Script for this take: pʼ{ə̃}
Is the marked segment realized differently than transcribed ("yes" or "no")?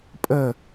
yes